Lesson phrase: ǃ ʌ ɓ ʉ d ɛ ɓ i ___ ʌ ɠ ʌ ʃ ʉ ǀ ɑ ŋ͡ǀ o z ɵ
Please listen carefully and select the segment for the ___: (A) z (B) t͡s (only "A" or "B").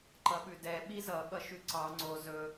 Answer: A